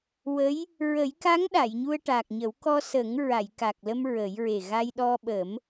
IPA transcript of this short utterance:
w ə˧˥ j | ɹ ə˨˩˦ j k a˧˥ ŋ ɗ a˨˩˨ j ɲ u˧ ə̯ ʈ a˨˩ k̚ ɲ ə˨˩˦ w k ɔ˧ s ə˨˩˦ ŋ ɹ a˨˩˨ j k a˨˩ k̚ l ə˧ m ɹ ə˨˩˦ j ɹ e˨˩ ɣ a˧ j ɗ ɔ˧ ɓ ə˨˩˦ m

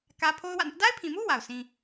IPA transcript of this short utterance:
k ä˦ pʰ o˦ ʊ̯ w ä̰˦˨ n ɪ˦ ʔ d a˦ ɪ̯ pʰ ĩ˨ m u˦ w a˨ ʊ̯ sʰ ĩ˦

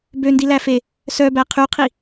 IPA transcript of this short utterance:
b ø n d i l æ f e | s œ b æ qʰ y qʰ i

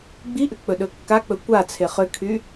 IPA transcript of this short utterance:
ɡ͡b i ʔ ʏ k͡p ɵ ɗ ɵ kː a k͡p ɵ kʷ a t͡sʰ e χ ʏ kʰ y

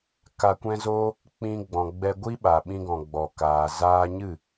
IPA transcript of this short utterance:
k a˧ kʷ ɛ̃˦ z o˦ | k͡p ĩ˧ ɡ͡b ɔ̃˨ ɡ͡b ɛ˧ ɡʷ i˦ ɓ a˨ ɓ ĩ˧ ɡ ɔ̃˨ ɡ͡b ɔ˨ k aː˨ z aː˧ ɲ ɨ˦˨

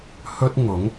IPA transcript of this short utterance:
h ɵ˥ t̚ ŋ ʊ˨˥ ŋ

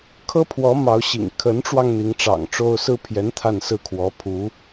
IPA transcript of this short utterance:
kʰ ɤ˥ pʰ w ɔ˧˥ m ɑ˧˥ ʊ̯ ɕ ḭ˨˩ ŋ kʰ ə˧˥ n ʈ͡ʂ w ɑ˧ ŋ n̪ i˧˥ ŋ ʈ͡ʂ ɑ̰˨˩ ŋ ʈ͡ʂ o˥ ʊ̯ s ɹ̩˥ pʰ j ɛ˧˥ n t̪ʰ a˥˧ n s ɹ̩˥˩ kʰ w ɔ˧˥ pʰ u˧˥

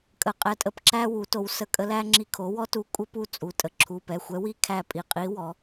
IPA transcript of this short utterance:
kʼ ə˩˧˩ qʼ ɛ˧˩ tʼ ə˧˩ p ǁ æ˥ w u˩˥ t o˩˥ w s ə˧˩ kʼ ə˧˥ l æ˥ ŋ͡ǁ i˧˩ kʰ o˩˥ w ɔ˥ t u˧˥ kʷʼ ə˥ p u˥˩ t͡sʼ u˩˧˩ tʼ ə˧˩ ǁʰ u˩˧˩ p ɛ˩˧˩ xʷ ɛ˧˥ w i˥˩ kʰ æ˥˩ pʼ i˧˩ qʼ i˧˥ w ɔ˩˥

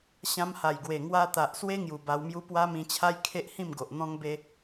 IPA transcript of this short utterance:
ɕ ã˧ m h a˨˩ j ɡ w e˨˩ ŋ w a˧ t̪ a˨ ʔ s w e˦ ŋ j u˨˩ b a˧ w m j u˦ p w a˦ m ĩ˧ t͡ɕʰ a˦ j kʰ e˦ ʔ h ĩ˥˧ m ɡ o˨ ʔ n̪ ɔ̃˦ ŋ b e˦

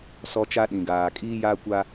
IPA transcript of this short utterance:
s ɔ˦ t͡ʃ a˦ ɗ ĩ˨ ɡ aː˨ kʼ iː˦ j aː˦ kʷ a˦

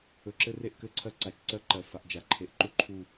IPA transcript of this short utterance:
ɵ˨ ǁ ɘ˦ r e˦ ʔ k ɘ˦ ǀʰ ɜ˦ ǀ a˨ t͡ʃ ǀ ɜ˦ ǃ ɜ˨ f a˨ ʔ d͡ʒ a˨ ǃʰ e˨ ʔ ǃ u˦ ǃʰ u˨

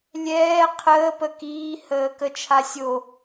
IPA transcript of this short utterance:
lʲ ɛː qʰ əː p ə k iː h əː k ə t͡ʃʰ a sʲ o

